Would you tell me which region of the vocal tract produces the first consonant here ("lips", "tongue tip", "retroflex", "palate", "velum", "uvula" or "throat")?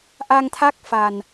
throat